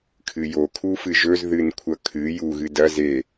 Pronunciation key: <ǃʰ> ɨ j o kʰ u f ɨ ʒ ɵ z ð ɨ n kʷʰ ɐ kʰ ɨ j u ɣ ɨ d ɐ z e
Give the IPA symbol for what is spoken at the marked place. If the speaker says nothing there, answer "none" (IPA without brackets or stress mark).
kʰ